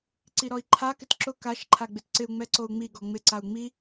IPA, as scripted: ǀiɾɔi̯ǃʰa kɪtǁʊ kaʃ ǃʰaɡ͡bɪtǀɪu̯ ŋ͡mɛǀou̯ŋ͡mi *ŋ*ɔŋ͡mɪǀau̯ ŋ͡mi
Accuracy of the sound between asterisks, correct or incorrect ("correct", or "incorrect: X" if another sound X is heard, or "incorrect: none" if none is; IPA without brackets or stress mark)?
incorrect: ɡ